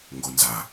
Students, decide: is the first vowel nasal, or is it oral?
oral